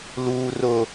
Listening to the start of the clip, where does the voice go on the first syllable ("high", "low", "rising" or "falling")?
high